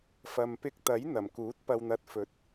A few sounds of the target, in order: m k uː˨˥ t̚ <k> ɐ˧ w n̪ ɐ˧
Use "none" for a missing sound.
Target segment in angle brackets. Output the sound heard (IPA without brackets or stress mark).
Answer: p